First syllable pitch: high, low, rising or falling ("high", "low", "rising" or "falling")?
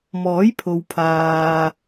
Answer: rising